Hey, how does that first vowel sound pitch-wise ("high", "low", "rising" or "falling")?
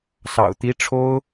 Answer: low